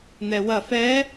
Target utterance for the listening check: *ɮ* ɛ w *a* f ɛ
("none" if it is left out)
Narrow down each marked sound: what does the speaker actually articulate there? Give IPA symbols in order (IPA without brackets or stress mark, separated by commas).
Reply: n̪, ɐ